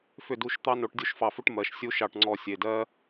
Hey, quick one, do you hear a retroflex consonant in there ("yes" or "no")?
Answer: yes